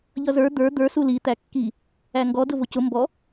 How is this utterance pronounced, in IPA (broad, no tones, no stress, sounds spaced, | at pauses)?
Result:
ʎ ʌ z ə˞ d̪ ə˞ d̪ ə˞ s u l i t̪ æ kː i | æ ŋ ɡ ɔ d ʊ v ʊ c ʊ m b ɔ